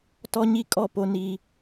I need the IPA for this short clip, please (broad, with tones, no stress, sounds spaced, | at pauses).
t ɔ˦ ɲ i˦ kʼ ɔ˦˨ p o˦ n i˦